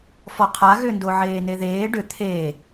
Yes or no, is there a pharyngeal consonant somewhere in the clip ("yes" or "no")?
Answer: yes